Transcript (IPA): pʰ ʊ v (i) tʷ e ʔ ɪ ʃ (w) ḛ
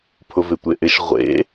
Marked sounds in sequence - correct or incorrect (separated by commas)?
incorrect, incorrect